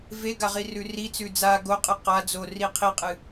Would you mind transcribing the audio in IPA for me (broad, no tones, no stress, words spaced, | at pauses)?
veɡa ʁirʉrit͡sʉ d͡za ɡoqʼɨ qa d͡zo riqʰiqʼɨ